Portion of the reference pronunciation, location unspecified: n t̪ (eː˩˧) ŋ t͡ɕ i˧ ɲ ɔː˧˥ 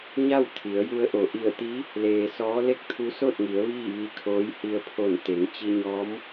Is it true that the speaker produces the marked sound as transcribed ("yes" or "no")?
no